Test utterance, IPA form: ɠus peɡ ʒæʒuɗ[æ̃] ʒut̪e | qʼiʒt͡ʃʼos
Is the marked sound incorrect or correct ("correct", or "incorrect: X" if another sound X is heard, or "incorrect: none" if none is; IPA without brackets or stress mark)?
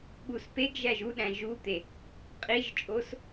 correct